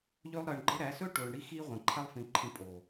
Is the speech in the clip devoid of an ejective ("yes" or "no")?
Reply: no